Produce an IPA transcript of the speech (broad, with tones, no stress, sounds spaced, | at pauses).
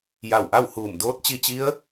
j a˧˩ w ʔ a˥˨ w h uː˧˩ m d oː˧˥ t̚ t͡ɕ i˧ t͡ɕ i˧˥ ə̯